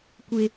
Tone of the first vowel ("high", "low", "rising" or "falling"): high